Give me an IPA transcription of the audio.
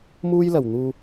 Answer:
m uː˥ j l ɐ˨˩ w n̪ uː˧

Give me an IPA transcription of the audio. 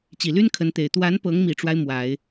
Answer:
t͡ɕ i˨˩ l y˥ n kʰ ə˧˥ n t̪ e˨˩ ɪ̯ t̪ w a˧˥ n p ɤ˧˥ ŋ m i˨˩ ʈ͡ʂ w a˦ ɪ̯ m w a˨˩˦ ɪ̯

